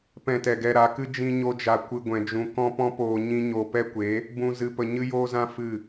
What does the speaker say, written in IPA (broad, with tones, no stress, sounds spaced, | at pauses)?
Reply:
p ɛ̃˧ t ɛ˨ ɡ ɛ˧ ɾ a˨˦ k ɨ˦ d͡ʒ ĩ˦ ɲ o˦ d͡ʒ a˧ kʷ ɨ˧ ɡʷ ɛ̃˧ d͡ʒ ũ˧ k ɔ̃˦ p ɔ̃˦ p oː˧ ɲ ĩ˦ ɲ o˧ p ɛ˦ kʷ e˨˦ | b ũ˧ z ɨ˧ p ə˧ ɲ ɨ˦ j oː˦ z ã˦ f ɨ˦˨